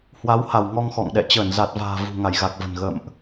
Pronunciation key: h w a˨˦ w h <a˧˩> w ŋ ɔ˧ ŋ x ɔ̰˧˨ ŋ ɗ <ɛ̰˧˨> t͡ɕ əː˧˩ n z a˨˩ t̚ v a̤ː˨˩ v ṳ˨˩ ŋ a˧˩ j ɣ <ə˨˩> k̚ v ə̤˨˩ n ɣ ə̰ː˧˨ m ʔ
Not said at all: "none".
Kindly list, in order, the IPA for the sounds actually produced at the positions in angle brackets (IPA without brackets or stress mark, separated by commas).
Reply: a˧˩, ɛ̰˧˨, a˨˩